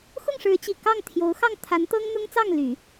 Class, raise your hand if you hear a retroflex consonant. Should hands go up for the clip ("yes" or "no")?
yes